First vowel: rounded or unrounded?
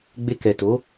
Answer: unrounded